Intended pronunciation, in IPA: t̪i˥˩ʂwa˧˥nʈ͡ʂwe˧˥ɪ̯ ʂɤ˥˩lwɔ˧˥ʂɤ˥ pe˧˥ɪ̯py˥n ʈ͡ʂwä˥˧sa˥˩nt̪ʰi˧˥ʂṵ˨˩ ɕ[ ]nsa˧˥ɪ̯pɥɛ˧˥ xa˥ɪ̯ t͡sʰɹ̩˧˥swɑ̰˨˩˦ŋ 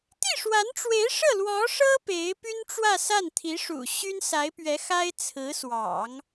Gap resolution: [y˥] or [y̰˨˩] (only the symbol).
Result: y˥